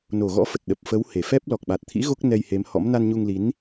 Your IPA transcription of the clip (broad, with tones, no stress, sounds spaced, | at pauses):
n o˨˩ ɣ ɔ̰˧˥ f ə˨˩ t̚ ɗ ə˨˩ p̚ f ə˨˦ w h e˨˩ f ɛ˦˥ p̚ l ɔ˨˩ k̚ ɓ a˨˩ t̚ t̪ʰ ḭ˧˥ ɣ o˦˥ k̚ n ɛ˧ j h e˨˦ m h ɔ̰˧˥ m n a˧ n ɲ u˧ ŋ l i˨˦ n